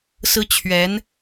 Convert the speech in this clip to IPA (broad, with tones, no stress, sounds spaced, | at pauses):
s ɹ̩˥ t͡ɕʰ ɥ ɛ˧˥ n